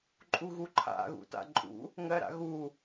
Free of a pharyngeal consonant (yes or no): yes